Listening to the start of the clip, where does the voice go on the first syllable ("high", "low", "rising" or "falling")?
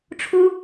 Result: high